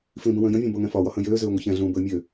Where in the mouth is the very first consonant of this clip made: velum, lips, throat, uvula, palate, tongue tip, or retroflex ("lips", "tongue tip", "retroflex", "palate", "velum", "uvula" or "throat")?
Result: lips